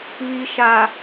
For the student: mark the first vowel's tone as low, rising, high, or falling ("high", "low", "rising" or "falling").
low